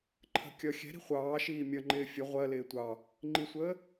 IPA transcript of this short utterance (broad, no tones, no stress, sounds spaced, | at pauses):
ǃʰ ə̤ kʲ ʌ xʲ ɛ̤ ɾ i̤ χʷ ɑː ʃ iː mʲ ʌ ŋ͡ǃ ɪː fʲ ə ʁʷ ɜ l ɪː tʷ ɑ | ŋ͡ǃ i sʷ əː